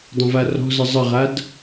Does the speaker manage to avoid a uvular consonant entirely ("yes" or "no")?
no